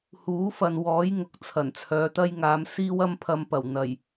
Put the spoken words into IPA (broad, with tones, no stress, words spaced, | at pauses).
huː˨˥fɐ˨n wɔː˨˥jŋʊ˨k̚ t͡sʰɐ˨˩nt͡sʰœː˨˧t̪ɐ˥j ŋaː˨˧m siː˥wɐ˥mpʰɐ˧mpɐ˨˩w n̪ɐ˨˩j